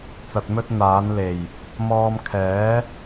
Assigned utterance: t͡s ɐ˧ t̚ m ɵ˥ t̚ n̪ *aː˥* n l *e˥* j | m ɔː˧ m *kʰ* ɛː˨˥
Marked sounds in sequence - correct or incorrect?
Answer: incorrect: aː˨˥, incorrect: e˨˩, correct

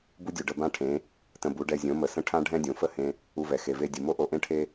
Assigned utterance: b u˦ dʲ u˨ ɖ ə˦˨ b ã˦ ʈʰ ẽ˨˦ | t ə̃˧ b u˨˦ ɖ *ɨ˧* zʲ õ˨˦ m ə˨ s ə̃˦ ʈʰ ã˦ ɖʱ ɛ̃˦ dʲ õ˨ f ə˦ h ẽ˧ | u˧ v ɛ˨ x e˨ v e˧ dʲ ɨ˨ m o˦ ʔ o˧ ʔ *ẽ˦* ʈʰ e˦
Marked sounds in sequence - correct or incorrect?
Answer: incorrect: ɛ˧, correct

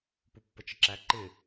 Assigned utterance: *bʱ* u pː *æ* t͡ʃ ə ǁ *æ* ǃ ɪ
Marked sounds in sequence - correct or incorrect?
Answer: incorrect: p, incorrect: ə, correct

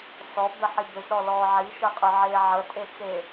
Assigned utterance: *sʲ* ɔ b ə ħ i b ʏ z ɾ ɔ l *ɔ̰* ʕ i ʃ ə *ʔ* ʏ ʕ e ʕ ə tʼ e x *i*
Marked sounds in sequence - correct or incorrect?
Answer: incorrect: s, incorrect: ɔ, incorrect: qʼ, incorrect: e

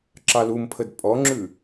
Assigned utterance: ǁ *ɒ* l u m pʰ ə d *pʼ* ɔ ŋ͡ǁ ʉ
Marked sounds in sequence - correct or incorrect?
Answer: incorrect: ɑ, correct

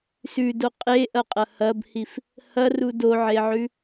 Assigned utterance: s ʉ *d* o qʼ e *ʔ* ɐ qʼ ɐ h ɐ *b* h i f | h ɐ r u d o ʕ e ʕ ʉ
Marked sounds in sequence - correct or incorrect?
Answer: correct, correct, correct

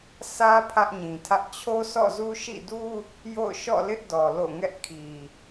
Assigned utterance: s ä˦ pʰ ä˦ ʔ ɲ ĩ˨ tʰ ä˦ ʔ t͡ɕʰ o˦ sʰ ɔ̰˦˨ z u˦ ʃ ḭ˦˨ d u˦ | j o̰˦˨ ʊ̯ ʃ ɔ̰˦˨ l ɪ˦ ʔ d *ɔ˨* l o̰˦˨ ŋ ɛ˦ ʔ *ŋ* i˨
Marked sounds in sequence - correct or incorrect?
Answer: correct, incorrect: kʰ

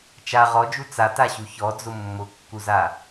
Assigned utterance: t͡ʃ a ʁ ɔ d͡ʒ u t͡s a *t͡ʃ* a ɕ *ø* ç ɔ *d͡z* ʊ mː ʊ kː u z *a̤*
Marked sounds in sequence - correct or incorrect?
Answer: incorrect: t, incorrect: u, correct, incorrect: a

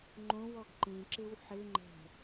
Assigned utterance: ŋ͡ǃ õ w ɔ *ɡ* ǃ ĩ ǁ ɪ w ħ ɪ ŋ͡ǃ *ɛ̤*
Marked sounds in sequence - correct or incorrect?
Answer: correct, correct

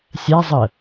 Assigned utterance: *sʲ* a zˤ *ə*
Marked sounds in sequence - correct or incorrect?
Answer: correct, correct

